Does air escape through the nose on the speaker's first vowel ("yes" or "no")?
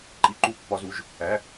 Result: no